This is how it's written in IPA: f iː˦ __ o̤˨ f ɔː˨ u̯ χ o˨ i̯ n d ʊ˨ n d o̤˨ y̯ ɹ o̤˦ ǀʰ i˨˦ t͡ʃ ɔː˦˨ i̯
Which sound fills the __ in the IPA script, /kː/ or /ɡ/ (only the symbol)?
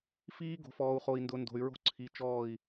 ɡ